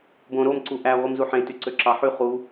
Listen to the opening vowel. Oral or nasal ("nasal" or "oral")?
nasal